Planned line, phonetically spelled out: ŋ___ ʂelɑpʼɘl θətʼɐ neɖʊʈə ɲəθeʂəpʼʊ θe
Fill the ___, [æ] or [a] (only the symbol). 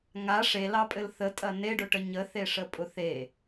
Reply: a